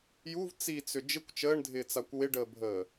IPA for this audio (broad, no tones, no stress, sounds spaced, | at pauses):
j u v t͡s i t͡s ʏ d͡ʒ ɪ kʷ t͡ʃ əː ɳ dʱ ɪː t͡s a kʷ w ɪ ɖ əː bʱ əː